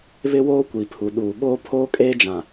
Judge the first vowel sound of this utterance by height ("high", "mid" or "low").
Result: high